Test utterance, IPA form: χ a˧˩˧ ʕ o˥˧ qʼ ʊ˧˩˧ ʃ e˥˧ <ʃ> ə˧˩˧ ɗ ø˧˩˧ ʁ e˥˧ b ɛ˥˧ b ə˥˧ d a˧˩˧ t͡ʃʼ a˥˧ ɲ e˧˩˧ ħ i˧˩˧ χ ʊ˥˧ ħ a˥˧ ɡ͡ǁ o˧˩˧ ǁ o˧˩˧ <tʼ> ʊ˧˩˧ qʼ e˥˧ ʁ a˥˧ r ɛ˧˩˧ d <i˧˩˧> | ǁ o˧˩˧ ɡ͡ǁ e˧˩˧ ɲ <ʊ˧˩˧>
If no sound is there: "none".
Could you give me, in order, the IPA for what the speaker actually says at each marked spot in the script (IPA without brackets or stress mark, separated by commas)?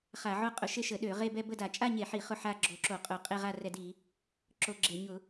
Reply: ʃ, qʼ, i˧˩˧, ʊ˧˩˧